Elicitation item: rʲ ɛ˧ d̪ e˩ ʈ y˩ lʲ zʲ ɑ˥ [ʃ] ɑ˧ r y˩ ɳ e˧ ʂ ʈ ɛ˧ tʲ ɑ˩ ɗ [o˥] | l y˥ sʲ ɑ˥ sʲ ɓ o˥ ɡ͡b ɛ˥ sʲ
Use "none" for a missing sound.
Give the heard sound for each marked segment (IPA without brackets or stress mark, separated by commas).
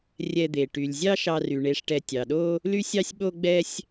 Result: ʃ, o˥